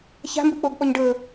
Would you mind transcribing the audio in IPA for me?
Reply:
ç a̤ m b ɯ k͡p o ɡ ɓ ɔ ɲ ɖ ɤ

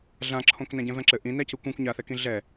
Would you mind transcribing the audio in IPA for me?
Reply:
ɮ ã ǁʰ õ k n æ̃ ɟ ɛ̃ v ɛ̃ ǁ ɘ ʔ ĩ n æ c ɯ kʷ ĩ kʷ ɲ a θ ɛ k ĩ ɮ ɛ

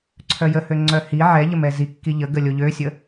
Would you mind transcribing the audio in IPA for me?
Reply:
ǀʰ œ j ə h ø ŋ͡ǀ œ h i ʕ ɛ ʎ ə m ɛ z i kː i ʎ ə ɡ ə lʲ o ʎ ø sʲ ə

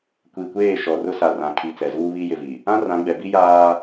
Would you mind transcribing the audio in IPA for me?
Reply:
kʷ i˨ kʷ eː˦˨ ʃ ɔ˨ r ʊ˦ s a˨ r ã˨ kʰ i˨ t͡s ɛ˨ z uː˦ β i˦ j ɪ˨ v i˨ | ã˦ r ã˨˦ ɡ͡b ɛ˨ b i˦ j aː˦

